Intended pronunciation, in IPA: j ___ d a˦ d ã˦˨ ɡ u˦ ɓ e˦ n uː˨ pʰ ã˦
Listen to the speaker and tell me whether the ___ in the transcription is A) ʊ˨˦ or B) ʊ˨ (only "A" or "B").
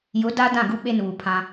A